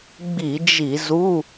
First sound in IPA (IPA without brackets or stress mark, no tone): ɡ͡b